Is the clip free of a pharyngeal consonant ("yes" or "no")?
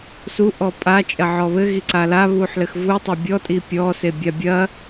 no